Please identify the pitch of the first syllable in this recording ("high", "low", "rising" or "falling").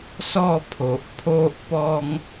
falling